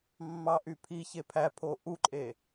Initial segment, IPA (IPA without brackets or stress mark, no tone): mː